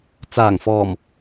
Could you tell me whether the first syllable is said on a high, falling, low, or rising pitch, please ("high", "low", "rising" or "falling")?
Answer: low